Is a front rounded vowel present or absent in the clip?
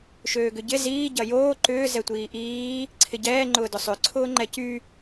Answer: present